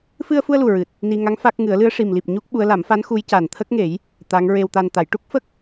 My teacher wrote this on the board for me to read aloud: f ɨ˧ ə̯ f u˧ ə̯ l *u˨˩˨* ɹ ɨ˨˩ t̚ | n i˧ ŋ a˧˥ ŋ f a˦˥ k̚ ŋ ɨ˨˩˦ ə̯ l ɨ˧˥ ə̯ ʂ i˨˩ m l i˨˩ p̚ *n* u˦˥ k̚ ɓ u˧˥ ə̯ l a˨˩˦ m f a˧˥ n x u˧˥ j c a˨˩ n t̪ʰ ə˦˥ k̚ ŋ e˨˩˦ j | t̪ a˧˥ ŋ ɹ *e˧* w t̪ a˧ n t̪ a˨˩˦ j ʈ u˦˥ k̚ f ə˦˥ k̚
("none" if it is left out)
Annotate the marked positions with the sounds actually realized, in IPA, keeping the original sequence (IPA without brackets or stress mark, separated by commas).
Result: u˨˩, ɲ, e˧